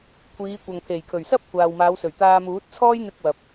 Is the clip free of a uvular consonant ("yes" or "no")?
yes